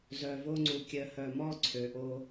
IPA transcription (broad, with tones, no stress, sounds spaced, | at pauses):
z œ˨ v o˦ ŋ͡ǀ u˨ kʲ œ˨ h œ˨ m ɔ˦ ǀʰ ø˨ ʔ o˦